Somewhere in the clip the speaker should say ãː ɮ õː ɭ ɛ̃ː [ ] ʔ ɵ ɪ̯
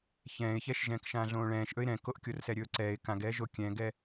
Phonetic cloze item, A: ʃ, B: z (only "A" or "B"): A